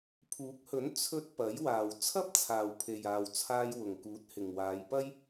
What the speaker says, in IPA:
pʰuː˨˥k̚hɵ˨˥n t͡sʰɵ˥t̚ pɐ˨˥j waː˨w t͡sʰɐ˥p̚t͡sʰaː˨wpʰe˨jaː˨w t͡sʰaː˧jwʊ˨ŋkuː˨˥t̚ hɪ˨ŋwaː˨˧jpɐ˥j

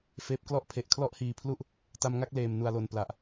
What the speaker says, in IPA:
feː˦˥p̚klɔ˥˩ʔ pʰe˨˩ʔ kʰlɔ˥˩ʔhiː˨˩pʰlu˥˩ʔ | ta˧mŋa˥˩k̚leː˨˩m nu˨˩a̯lo˨˩n pla˨˩ʔ

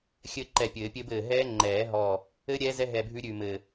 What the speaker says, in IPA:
xʲɘ˦˥ǃɛ˧˩pʲɘː˨˩˦pʲɘ˦˥b ɘː˧˩ ɦɛː˦˥ ŋ͡ǃɛː˨˩˦ɦɔ˧˩ | ɘ˦˥ ɾʲɛː˦˥zɛ˦˥ɦɛ˧˩ bʱʉ˦˥ɾʲʉ˧˩mɘ˧˩

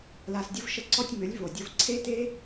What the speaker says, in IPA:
la˧sdʲʊ˦v ʃə˦ǀɔ˦tʲ mʏ˨˦lʲvo˨ dʲʊ˧vǀʰe˦te˦

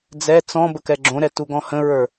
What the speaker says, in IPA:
d͡zɛ t͡sɔ̃ bəkɛɡ͡ǁõɾɛ tuɡɔ̃hə̃ɹə˞

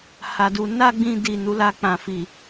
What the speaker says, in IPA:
ha˧du˧ na˦ɡ͡bĩ˧ di˨ nu˧la˧k͡pã˨ fi˨

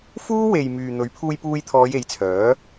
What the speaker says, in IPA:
fuː˥we˨j myː˨ n̪ɵ˨˥ɥpʰuː˧jpuː˧jt̪ʰɔː˨˧j e˨˥jt͡sʰœː˨˥

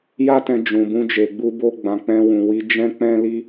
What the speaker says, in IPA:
ja˦tɛ̃˧ d͡ʒũ˨bũ˧d͡ʒe˨ɡ͡bu˧ bo˧ɡ͡bã˨ k͡pɛ̃˧wũ˨wi˨˦ d͡ʒɛ̃˦k͡pɛ̃˦ li˦

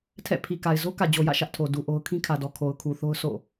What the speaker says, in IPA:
tʰɛ̰˦˨pʰi˨ka˨ɪ̯ zo˦kä˨d͡ʑo˨jä̰˦˨ ʃä˦ʔtʰo˨ du˨ʔo˦ʊ̯ kʰĩ˦kʰä˨dɔ˨ kʰo˨ʊ̯kʰu˨θo˦ʊ̯ sʰo̰˦˨

